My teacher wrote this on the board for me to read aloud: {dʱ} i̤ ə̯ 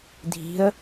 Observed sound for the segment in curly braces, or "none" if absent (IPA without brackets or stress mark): dʱ